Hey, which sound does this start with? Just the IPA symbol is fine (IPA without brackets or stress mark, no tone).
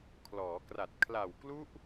kʰ